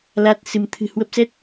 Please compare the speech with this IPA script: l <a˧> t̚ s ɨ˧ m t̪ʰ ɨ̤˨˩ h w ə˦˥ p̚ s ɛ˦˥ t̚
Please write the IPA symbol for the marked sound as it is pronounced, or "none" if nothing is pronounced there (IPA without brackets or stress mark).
a˦˥